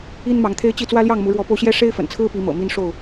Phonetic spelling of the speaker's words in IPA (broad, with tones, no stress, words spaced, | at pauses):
i˦nmɑ˨˦ŋt̪ʰe˦ɪ̯ t͡ɕi˥˨t͡swä˦ljɑ˥˨ŋmu˨˦ ɻwɔ˨˦po˧ʊ̯ɕjɛ˦ ʂe˦ɪ̯fə̰˨˩nt͡sʰɹ̩˦ pi˨˦mɤ̰˨˩ mi˥˨nʂo˥˨ʊ̯